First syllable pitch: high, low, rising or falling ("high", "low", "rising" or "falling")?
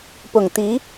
low